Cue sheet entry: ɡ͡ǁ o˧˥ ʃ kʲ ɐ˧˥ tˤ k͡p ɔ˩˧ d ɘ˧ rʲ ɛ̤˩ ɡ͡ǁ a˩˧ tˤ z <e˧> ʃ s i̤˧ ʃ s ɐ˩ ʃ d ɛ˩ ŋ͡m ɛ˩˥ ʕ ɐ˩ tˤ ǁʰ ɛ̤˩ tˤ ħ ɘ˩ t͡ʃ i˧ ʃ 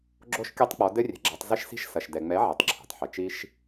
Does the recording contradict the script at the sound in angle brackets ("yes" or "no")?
yes